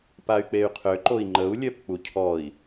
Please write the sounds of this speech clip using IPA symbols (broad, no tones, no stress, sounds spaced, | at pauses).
p a y̯ k͡p e y̯ qʰ ø ǃ o i̯ ŋ͡ǃ ə u̯ lʲ œ p k͡p u cʰ ɔ i̯